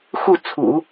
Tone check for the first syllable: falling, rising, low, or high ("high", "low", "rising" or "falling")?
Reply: falling